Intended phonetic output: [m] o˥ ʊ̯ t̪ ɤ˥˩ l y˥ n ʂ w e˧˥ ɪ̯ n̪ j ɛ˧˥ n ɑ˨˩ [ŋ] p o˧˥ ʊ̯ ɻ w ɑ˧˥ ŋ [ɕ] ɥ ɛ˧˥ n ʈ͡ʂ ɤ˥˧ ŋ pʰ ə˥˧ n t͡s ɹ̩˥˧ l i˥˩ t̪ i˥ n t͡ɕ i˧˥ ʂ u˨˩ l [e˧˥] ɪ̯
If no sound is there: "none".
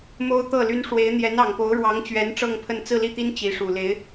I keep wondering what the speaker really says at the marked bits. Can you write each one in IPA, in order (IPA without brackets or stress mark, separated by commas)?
m, ŋ, t͡ɕ, e˧˥